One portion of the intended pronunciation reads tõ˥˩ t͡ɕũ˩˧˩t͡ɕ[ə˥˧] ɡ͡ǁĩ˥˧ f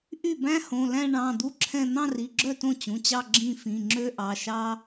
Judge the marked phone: incorrect: ɑ˥˧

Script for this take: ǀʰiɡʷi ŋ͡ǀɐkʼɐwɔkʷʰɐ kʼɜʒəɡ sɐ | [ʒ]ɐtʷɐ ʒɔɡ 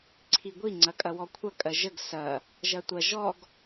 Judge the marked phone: correct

